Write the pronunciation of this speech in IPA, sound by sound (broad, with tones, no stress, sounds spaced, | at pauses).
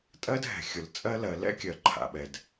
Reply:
tʼ ɜ˥ d ɦ ɛ̤˩ xʲ ʊ˩ l t͡sʼ ɜ˥ l ɜ˩ l ɛ̰˥ kʲ ɜ˩ ǃʰ a̰˩ ɓ ɛ˩ d